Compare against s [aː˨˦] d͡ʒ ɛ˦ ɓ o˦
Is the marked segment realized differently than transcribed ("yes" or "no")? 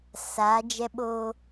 no